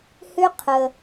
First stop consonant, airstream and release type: aspirated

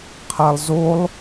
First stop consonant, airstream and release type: aspirated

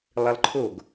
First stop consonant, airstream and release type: click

